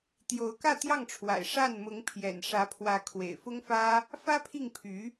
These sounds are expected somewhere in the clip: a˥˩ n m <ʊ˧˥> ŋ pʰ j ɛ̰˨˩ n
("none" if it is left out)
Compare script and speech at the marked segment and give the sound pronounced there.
ʊ˧˥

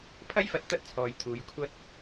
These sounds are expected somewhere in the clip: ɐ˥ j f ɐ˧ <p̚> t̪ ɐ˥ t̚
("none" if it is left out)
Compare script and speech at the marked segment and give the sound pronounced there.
t̚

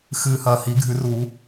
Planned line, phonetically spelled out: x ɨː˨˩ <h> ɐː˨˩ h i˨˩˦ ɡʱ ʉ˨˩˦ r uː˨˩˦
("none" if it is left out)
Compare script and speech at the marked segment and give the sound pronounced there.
h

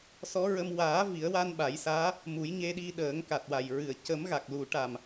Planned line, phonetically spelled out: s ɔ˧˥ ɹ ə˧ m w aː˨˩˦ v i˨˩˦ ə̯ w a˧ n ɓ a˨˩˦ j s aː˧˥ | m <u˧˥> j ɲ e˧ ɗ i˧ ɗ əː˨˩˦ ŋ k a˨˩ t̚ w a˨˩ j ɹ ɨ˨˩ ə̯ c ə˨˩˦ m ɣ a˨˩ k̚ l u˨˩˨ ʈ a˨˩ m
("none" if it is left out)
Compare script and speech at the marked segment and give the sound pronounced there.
u˨˩˦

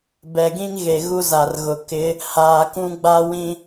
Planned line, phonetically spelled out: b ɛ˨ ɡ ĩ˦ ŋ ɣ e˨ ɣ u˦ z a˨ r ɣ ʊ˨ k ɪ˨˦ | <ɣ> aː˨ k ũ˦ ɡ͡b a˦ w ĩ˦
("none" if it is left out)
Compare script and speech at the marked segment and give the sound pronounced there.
h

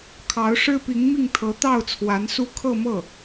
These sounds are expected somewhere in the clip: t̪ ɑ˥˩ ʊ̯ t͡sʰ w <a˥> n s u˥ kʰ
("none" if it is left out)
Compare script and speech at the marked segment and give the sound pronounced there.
a˧˥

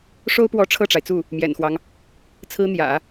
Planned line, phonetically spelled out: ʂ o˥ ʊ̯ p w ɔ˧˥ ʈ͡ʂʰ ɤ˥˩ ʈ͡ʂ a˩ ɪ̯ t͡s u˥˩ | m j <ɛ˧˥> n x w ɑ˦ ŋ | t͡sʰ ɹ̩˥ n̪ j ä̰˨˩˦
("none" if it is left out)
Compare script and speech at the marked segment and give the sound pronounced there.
ɛ̰˨˩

